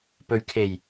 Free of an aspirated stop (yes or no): no